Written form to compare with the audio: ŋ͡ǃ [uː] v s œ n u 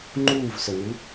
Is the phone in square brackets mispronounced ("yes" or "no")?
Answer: no